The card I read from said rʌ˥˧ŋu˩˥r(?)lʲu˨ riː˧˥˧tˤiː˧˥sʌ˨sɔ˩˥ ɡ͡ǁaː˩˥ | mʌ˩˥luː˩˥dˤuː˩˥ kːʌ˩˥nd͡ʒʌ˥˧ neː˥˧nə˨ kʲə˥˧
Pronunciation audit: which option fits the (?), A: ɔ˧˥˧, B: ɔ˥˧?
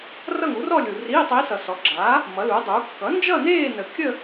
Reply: B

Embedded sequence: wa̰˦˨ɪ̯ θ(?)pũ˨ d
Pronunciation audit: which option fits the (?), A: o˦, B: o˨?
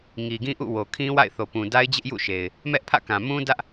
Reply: B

